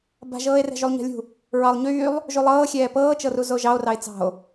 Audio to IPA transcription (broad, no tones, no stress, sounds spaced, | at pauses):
b a̤ ʒ ɤː e̯ r ɛ̤ ʒ y lˠ ɲ ɛ̤ lʲ ṳ | ɹ ɑ lˠ ɲ yː lˠ | ʒ u lˠ ɤː xʲ ɛː p ɤː t͡ʃ ɤ r u z o ʒ ɑ o̯ r ɑ e̯ t͡s ɑ̤ o̯